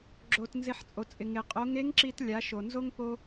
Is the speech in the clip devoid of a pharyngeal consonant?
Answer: no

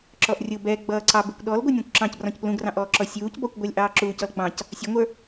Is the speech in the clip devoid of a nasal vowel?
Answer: no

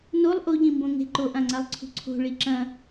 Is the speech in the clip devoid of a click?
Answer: no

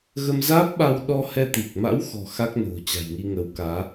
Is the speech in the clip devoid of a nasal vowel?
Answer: yes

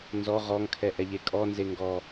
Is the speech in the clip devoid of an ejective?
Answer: no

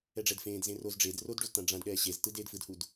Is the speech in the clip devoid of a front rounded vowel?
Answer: yes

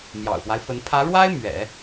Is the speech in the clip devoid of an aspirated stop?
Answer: no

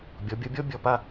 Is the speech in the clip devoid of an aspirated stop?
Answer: yes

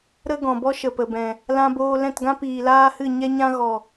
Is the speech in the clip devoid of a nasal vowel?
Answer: no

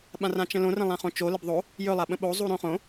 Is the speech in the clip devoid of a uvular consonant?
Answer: no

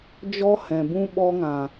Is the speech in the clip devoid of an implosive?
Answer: no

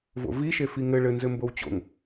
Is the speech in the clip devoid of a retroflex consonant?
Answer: no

